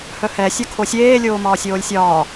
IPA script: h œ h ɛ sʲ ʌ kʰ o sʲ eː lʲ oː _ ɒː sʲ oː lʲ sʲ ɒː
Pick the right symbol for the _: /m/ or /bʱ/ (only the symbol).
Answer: m